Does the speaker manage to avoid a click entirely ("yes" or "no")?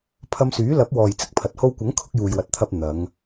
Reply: yes